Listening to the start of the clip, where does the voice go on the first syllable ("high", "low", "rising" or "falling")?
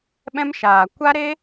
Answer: high